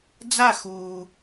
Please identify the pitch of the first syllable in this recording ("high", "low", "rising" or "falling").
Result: falling